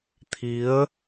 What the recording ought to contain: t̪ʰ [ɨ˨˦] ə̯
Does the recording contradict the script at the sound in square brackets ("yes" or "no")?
yes